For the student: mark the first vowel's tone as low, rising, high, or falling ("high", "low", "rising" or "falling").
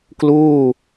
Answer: falling